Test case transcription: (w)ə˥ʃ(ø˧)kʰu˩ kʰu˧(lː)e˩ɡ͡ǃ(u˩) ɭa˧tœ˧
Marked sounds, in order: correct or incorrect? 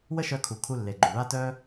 correct, incorrect, correct, correct

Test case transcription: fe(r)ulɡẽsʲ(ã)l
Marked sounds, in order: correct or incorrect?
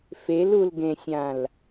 incorrect, correct

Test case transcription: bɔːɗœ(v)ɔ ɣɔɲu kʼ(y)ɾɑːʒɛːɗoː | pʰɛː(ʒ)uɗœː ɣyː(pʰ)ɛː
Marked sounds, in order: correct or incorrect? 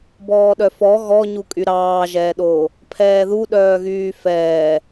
incorrect, correct, incorrect, incorrect

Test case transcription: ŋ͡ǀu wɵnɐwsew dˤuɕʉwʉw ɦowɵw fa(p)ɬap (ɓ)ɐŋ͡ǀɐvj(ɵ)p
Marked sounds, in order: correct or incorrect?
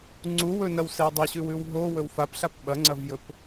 correct, correct, correct

